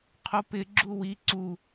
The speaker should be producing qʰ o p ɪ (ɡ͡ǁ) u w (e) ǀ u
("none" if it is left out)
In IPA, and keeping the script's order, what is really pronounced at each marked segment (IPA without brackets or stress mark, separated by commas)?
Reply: ɡ͡ǁ, i